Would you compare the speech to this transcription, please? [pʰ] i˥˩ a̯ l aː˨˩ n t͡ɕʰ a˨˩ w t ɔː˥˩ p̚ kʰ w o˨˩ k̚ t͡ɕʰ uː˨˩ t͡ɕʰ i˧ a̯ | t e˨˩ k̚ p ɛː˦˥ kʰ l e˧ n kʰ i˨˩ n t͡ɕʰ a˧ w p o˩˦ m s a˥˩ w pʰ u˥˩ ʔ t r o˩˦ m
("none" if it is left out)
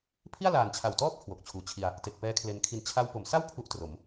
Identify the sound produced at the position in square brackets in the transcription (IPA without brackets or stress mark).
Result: pʰ